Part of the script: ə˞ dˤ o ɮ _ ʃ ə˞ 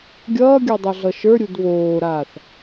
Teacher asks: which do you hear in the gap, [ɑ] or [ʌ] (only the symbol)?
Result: ʌ